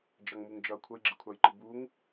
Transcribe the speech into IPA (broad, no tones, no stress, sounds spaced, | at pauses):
d͡ʒ ʌ ŋ m u ŋ d͡ʒ ʌ kʷʰ ʌ j ɡ͡ǁ ɪ kʷʰ ɑ j ǃ ɪ b u ŋ